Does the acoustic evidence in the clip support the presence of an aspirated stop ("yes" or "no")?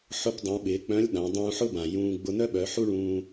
no